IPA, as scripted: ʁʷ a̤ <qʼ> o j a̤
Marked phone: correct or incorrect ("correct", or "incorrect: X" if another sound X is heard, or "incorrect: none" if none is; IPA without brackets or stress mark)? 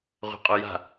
correct